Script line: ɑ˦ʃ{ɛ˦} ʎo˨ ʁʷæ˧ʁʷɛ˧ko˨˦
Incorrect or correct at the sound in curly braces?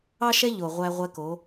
correct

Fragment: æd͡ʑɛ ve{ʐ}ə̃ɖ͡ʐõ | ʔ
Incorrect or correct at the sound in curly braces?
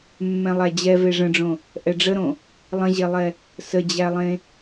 correct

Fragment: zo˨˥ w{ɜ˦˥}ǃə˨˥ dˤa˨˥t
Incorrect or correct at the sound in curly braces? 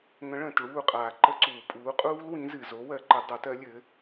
incorrect: ɜ˨˥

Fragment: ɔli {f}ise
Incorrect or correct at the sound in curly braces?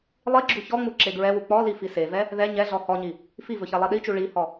correct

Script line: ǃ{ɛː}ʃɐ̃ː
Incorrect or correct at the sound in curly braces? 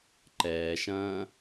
correct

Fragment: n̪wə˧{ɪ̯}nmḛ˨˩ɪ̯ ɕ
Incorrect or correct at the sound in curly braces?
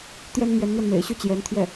incorrect: none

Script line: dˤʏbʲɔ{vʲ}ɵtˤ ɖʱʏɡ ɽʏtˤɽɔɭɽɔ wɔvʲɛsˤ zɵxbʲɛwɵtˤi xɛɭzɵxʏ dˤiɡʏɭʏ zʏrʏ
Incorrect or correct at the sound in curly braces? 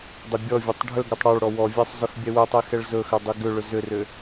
correct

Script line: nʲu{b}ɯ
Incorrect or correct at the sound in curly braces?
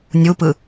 incorrect: p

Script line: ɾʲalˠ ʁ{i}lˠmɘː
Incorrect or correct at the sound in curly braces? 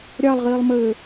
incorrect: iː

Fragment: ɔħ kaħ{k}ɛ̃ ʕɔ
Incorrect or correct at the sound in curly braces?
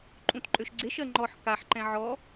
incorrect: ǃ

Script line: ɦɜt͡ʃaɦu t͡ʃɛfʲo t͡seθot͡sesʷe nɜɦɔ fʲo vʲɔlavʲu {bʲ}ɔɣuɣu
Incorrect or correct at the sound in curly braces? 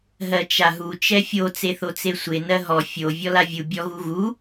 correct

